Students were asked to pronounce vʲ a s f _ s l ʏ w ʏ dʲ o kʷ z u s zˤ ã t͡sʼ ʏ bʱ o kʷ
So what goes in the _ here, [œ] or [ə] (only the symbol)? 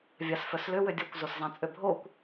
œ